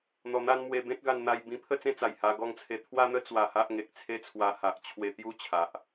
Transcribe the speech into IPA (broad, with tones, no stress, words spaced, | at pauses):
n̪ɔ˧n̪a˦n mwe˧bẽ˦t̚ɡa˧n n̪a˧jbĩ˧ pʰə˥˧t͡sẽ˥˧t͡sa˨˩j ha˧ɡɔ˧ŋt͡sʰe˧ t̪ʰwa˦n̪ə˦ t͡swa˧ha˦ʔ ŋe˨k̚t͡sʰe˦t͡sʰwa˧ha˨ʔ t͡ɕʰwe˧t̪ju˥˧t͡ɕʰa˨ʔ